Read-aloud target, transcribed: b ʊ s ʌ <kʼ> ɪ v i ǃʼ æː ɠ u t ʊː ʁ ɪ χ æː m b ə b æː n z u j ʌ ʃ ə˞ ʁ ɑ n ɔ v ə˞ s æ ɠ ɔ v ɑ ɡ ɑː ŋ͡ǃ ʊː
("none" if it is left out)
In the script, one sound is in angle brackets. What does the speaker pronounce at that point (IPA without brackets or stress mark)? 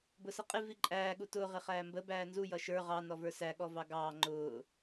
qʼ